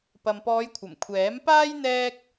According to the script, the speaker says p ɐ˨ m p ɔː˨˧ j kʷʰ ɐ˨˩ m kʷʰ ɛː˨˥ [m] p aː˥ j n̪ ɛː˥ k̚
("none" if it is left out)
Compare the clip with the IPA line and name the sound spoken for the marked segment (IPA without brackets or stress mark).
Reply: m